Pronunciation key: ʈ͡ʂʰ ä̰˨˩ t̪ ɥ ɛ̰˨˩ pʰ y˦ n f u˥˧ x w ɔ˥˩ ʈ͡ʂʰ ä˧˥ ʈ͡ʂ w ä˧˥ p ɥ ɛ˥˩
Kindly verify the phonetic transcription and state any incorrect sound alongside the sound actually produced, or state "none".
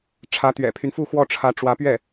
ä̰˨˩ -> ä˧˥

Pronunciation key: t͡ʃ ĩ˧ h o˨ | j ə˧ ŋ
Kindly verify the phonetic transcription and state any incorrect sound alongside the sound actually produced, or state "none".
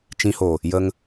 none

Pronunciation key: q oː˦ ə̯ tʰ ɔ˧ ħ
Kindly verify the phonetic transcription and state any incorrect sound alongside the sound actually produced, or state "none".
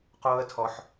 none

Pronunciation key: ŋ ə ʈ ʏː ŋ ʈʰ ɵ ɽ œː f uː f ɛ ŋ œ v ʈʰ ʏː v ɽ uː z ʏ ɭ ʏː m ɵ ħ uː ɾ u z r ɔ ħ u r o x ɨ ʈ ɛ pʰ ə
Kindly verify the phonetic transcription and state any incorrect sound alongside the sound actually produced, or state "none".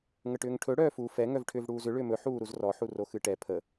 none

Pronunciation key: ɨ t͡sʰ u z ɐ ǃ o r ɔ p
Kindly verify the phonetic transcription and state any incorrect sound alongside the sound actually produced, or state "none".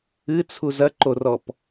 none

